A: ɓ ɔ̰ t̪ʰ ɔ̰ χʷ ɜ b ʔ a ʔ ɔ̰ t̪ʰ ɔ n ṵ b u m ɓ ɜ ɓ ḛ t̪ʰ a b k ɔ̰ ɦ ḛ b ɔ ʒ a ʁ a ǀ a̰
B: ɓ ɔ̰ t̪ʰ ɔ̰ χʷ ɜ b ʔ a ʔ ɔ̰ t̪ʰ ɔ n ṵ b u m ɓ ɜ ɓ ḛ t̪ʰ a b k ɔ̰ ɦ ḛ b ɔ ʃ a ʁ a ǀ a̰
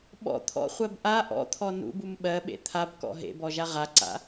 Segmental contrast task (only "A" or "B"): A